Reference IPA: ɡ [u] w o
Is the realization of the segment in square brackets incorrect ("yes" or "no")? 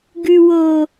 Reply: yes